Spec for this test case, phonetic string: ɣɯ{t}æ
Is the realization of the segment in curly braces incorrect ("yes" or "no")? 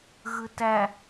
no